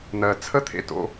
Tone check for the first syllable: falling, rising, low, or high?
low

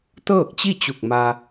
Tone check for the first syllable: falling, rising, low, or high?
falling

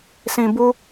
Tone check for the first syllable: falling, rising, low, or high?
low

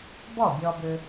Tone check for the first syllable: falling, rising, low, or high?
falling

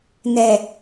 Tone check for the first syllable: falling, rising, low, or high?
low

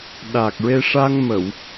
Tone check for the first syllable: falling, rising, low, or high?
low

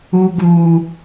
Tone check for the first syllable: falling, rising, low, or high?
high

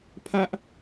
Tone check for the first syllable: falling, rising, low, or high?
high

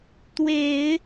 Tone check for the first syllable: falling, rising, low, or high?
low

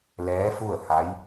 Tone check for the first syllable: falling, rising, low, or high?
rising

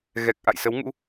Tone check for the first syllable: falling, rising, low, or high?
low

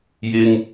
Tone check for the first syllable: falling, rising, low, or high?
high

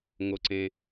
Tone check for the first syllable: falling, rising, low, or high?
low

